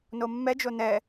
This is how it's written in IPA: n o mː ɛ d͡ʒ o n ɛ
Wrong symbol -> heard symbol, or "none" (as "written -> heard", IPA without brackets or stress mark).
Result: none